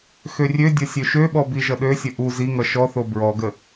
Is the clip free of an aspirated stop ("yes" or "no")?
yes